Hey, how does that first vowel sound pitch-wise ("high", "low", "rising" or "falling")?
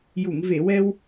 low